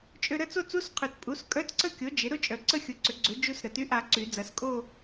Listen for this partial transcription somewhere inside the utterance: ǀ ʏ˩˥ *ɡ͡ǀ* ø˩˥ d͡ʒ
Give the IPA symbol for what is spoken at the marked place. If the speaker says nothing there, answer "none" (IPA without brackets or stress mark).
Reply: ɡ͡ǀ